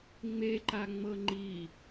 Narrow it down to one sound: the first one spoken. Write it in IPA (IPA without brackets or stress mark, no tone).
ŋ͡m